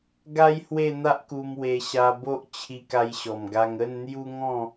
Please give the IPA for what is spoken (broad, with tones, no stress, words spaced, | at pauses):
ɡa˦j hwe˥˧n̪a˦ʔku˧m we˧ ɕa˧bo˦ʔ t͡ɕʰi˧ka˧jɕɔ˨˩mɡa˧ŋ ə˥˧nn̪ju˦ŋɔ̃˥˧